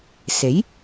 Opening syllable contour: rising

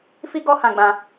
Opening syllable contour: high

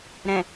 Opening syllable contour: low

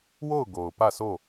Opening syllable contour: falling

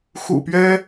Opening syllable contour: low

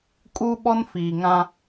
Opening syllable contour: high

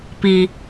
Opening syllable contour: low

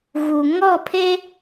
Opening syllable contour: low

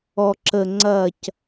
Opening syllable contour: low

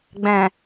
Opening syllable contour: low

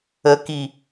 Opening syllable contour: high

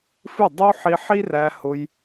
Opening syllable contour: falling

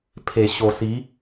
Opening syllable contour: low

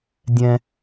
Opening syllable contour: high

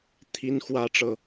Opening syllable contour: high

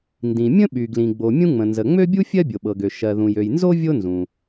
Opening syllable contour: low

